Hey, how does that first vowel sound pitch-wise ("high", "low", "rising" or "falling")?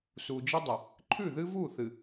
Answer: low